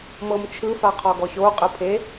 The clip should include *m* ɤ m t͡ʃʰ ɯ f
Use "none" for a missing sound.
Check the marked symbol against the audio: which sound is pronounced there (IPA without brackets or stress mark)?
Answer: m